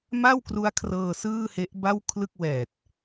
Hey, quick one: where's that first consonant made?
lips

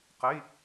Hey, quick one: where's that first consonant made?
uvula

